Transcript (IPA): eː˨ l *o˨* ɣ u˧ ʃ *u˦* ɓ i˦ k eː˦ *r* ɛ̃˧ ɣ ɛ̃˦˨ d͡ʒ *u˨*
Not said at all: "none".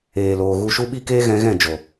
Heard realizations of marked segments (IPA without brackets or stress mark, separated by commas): oː˨, u˦, ɣ, o˨